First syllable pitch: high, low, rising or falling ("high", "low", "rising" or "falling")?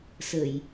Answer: low